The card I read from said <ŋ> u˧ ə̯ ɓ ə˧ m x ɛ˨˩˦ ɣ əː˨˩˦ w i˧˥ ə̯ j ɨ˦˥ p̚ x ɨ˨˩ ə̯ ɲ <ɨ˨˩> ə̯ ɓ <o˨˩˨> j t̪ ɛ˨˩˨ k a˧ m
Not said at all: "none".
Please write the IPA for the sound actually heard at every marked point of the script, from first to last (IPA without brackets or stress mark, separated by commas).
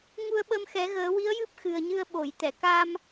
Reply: ŋ, ɨ˧, o˨˩˨